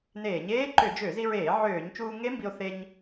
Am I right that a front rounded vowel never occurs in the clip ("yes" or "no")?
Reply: no